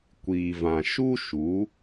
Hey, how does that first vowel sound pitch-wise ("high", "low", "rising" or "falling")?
low